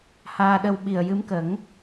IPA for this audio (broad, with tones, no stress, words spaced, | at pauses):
haː˧ɗə˧wɓi˨˩ə̯ jɨ˧˥mkə˨˩˦ŋ